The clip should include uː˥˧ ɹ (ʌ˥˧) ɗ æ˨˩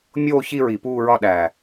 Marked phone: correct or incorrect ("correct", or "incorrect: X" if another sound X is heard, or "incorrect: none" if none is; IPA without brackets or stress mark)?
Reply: incorrect: ɒ˥˧